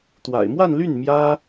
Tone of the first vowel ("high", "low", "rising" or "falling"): low